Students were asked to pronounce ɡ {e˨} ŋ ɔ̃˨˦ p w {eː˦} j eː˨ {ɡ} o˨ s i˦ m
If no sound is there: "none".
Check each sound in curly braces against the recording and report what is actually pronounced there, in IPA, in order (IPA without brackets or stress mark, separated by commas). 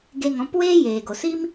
e˧, eː˦, ɡ